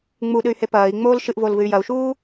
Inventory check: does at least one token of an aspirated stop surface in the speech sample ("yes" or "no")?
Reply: no